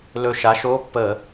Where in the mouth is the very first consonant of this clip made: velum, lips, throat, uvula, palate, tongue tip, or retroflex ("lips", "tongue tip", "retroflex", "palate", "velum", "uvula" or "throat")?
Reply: tongue tip